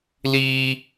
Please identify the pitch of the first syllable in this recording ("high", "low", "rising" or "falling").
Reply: high